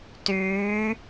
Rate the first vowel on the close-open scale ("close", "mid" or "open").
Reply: close